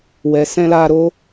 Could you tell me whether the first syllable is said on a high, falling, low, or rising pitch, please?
low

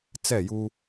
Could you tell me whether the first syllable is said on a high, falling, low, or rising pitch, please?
falling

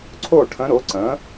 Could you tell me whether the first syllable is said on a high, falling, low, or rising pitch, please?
falling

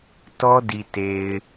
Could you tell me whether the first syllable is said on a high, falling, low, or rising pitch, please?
high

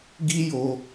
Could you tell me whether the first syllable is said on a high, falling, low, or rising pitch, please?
high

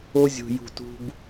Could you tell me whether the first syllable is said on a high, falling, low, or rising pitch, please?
high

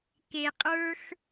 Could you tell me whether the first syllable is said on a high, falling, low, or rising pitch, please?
low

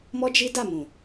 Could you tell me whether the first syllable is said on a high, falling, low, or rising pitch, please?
high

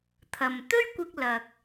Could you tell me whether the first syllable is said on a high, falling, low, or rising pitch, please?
low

